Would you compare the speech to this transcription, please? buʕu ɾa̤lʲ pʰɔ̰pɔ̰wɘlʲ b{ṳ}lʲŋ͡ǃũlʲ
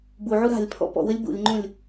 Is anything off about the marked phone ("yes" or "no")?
yes